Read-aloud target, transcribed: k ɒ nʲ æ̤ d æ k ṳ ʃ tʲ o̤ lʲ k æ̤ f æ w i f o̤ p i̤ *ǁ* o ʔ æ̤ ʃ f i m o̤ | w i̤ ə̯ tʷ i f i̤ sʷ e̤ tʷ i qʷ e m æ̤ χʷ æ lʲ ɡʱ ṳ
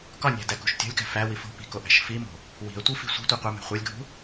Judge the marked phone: incorrect: k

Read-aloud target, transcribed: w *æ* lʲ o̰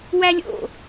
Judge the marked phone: correct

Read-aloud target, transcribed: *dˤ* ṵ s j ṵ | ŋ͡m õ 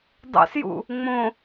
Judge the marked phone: correct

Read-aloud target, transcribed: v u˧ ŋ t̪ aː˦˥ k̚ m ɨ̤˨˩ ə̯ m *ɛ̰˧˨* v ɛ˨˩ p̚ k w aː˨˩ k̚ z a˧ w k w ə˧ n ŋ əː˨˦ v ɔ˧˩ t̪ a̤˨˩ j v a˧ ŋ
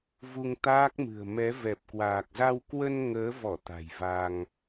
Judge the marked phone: incorrect: ɛ˨˦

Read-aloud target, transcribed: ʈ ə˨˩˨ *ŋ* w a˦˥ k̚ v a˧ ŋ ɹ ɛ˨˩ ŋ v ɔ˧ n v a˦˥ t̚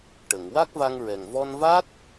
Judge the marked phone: correct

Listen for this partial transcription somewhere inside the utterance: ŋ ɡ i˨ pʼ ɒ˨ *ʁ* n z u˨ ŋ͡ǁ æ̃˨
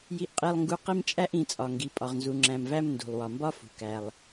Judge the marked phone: correct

